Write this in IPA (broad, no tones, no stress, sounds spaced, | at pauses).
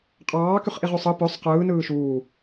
qʼ ɑː k y χ ʔ i ʁ y sˤ ɯ p ø sˤ q ɯː n ɯː ʃ uː